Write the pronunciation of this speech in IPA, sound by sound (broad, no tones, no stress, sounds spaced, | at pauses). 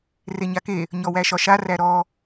r e ɲ a k e | ɲ ɔ w æ ʃ ɒ ʃ a r æ ɾ ɔ